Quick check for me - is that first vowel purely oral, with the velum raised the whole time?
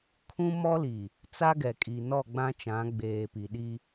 no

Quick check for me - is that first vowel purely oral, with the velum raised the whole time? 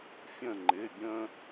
no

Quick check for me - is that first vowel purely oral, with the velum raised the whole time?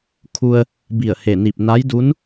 yes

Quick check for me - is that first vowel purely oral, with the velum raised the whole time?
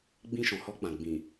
no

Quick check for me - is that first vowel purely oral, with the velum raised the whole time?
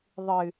yes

